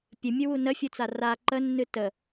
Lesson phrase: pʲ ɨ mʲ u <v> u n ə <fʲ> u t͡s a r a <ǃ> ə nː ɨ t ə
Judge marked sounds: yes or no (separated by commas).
no, yes, yes